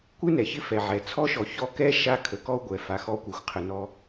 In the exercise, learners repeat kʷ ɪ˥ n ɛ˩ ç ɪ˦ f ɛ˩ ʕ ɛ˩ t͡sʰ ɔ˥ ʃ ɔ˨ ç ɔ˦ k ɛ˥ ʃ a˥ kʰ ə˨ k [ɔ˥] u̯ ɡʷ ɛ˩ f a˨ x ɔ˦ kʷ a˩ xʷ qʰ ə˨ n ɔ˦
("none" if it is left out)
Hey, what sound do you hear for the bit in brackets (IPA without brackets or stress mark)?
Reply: ɔ˥